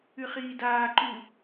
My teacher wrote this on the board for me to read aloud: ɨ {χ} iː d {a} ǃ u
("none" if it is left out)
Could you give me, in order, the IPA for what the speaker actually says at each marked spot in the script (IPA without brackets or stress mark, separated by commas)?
χ, aː